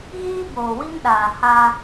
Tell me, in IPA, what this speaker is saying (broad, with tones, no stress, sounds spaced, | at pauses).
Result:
ɣ iː˦ b oː˨ w i˦ m ɗ aː˨ h a˦